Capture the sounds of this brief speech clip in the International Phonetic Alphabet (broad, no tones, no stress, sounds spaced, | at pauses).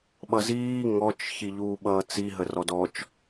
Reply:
ɓ ʌ z iː ŋ ɔ t͡ʃ ç i ʎ uː ɓ ʌː t͡s i ɦ ə r ɔ d ɔ t͡ʃ